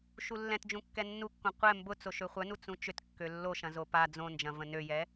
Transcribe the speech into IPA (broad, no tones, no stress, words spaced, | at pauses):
ʃulːɛ̃td͡ʒũ kːɛnːukːõ qʷɛ mbʊ t͡soʃøχʷœnu t͡sũt͡ʃʏt kːølːoʃɐ̃ zopa d͡zõnd͡ʒɐ̃ və̃nøjɛ